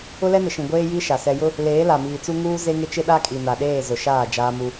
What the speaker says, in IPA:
ʊ˦ l ɛ˦ n ɪ˨ ʃ ĩ˨ ɡʷ eː˦ j i˦ ʃ a˨ s ɛ˨ j ʊ˦ | l eː˨˦ l a˨ m iː˨ t͡s u˦ ŋ uː˦ z e˦ ŋ ɪ˦ t͡ʃ ɪ˦ ɗ a˦ kʼ i˨ n a˨ ɗ eː˦˨ z ʊ˨ ʃ aː˦˨ d͡ʒ aː˦ m u˦

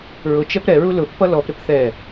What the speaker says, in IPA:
ɹ ʊ t͡ʃ ɛ p ɾ ɛ ɹ u l ʊ pː ʌ l ɔ p ɾ ɪ p θ ɛ

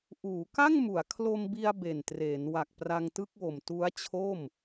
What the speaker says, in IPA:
ʔ uː˩˦ k a˥˩ ŋ m u˩˦ a̯ kʰ l o˧ m b i˧ a̯ b e˨˩ n t r eː˩˦ n w a˨˩ k̚ p r a˧ ŋ t ɯ˥˩ k̚ w o˨˩ m t u˦˥ a̯ t͡ɕʰ o˥˩ m

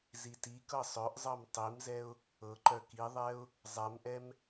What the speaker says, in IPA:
z i t i k ɤ sˤ œ ʔ zˤ ɤ m tˤ i m z ɛ ʊ̯ | ɤ ǃ œ k i ðˤ ɛ ʊ̯ | zˤ ɛ m ʔ ɛ m

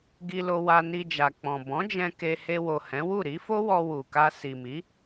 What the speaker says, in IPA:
ɡ i˧ l o˧ w a˧ n i˧ d͡ʒ a˨ k͡p ɔ̃˨ b ɔ̃˨˦ d͡ʒ ɛ̃˧ k e˧ h e˧ w o˨ h ɛ̃˨˦ w u˦˨ ɾ i˨˦ f o˦ w ɔ˧ w u˨ k a˧ s i˨ m i˨˦

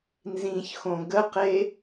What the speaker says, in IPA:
n z ĩ ç x õ ɡ ə q e

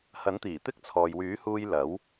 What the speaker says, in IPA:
h ɐ˨˥ n t̪ iː˨˩ t̪ ɪ˥ k̚ t͡sʰ ɔː˨ j w yː˨˥ h uː˧ j l ɐ˨˥ w

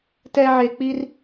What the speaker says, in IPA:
t ɛ˦ ʕ e˧ k͡p i˦ r

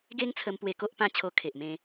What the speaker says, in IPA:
ɡ e˦ ŋ t͡sʰ ə˧ m p w e˧ k o˦ ʔ p ã˥˧ t͡ɕʰ o˧ kʰ e˨ ʔ m ẽ˧

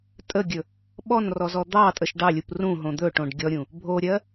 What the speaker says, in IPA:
tʼ ə ɡʲ ɵ | ɓ ɔ n r ɔ z ɔ d̪ ɑ tʼ ə ʃ ɖ ɑ lʲ u p r ũ ɦ õ d̪ ɵ ʈ õ ɖ ɡʲ ɔ ɾʲ ũ | bʱ o ɾʲ ɜ

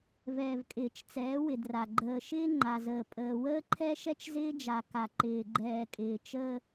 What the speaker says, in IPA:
v ɛː˨ v kʼ ɪː˨ t͡ʃ t͡s ɛː˨˦ w ɪ˨ d r a˨ ɡ͡ǃ əː˨ ʃ ɪː˦ ŋ͡ǃ a˨ z əː˨ pʼ əː˨ w əː˦ ǃʰ ɛ˦ ʃ ɛ˦ t͡ʃ z ɪː˦ d͡ʒ a˨ k a˨ ǃ ɪː˨ ɡ͡ǃ ɛː˨ kʼ ɪː˨ t͡ʃ əː˦

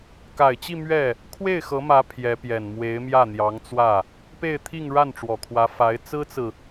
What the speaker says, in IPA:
k a˨˩ ɪ̯ t͡ɕ i˥˧ m ɥ ɛ˥˩ | kʰ w e˥˩ ɪ̯ x ɤ˧˥ m ä˧˥ pʰ j ɛ˧˥ p j ɛ˨˩ n m w e˧˥ ɪ̯ m j ä˥˩ n̪ j ɑ˧˥ ŋ t͡s w ä˥˩ | p e˥˧ ɪ̯ t̪ʰ i˥˧ ŋ ɻ a˥˩ n ʈ͡ʂ w ɔ˨˩ kʰ w ä˧˥ f a˧˥ ɪ̯ t͡s ɹ̩˥ t͡s ɹ̩˨

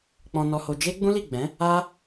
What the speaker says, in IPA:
k͡p ɔ̃˧ n ɔ˧ h o˧ d͡ʒ e˦ ɡ͡b ũ˦ l i˦˨ ɡ͡b ɛ̃˨˦ | a˦

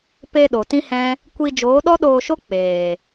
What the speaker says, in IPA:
p e˧ ɗ o˨ t ĩ˦ h ɛ̃˦ | kʷ i˧ d͡ʒ oː˨˦ ɗ ɔ˦ ɗ oː˧ ʃ o˦ k͡p eː˨

